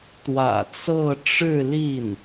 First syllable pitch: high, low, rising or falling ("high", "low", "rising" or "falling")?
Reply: low